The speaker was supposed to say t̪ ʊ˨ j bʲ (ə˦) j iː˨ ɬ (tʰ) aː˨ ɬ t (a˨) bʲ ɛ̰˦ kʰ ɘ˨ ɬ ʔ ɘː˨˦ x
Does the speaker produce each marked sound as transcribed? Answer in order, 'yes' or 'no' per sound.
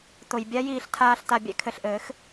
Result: no, yes, yes

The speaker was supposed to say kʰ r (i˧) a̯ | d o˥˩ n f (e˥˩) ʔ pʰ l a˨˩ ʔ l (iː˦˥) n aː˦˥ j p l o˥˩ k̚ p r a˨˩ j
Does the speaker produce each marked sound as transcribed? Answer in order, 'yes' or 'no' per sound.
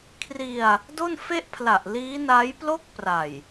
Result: yes, yes, yes

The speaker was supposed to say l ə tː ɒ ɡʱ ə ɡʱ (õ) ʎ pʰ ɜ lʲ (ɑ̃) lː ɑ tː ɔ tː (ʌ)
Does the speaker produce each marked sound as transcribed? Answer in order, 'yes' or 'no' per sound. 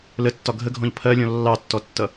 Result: no, no, yes

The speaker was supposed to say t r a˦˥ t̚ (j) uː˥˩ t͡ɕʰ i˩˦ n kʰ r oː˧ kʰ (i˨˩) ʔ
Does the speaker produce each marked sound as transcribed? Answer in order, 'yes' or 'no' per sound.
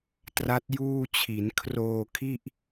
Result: yes, no

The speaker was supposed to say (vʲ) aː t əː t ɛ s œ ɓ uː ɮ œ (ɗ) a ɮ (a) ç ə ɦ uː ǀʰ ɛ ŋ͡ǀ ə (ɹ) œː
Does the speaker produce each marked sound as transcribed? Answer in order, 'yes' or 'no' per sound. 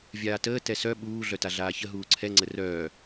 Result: yes, no, no, no

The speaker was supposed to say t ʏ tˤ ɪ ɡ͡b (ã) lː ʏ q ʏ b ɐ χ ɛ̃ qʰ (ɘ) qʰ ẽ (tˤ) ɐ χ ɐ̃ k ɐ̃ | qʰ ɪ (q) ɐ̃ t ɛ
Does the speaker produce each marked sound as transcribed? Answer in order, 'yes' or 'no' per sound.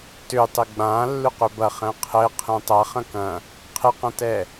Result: yes, yes, yes, yes

